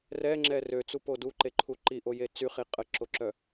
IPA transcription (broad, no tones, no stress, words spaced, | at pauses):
rɛŋ͡ǁɛ røt͡supo duǃeǃʰu ǃiʔoje t͡syχi qʼəǁoǁœ